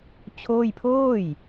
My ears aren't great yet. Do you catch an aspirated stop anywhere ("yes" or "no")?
yes